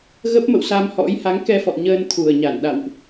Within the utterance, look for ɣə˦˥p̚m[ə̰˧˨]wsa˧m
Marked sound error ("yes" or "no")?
no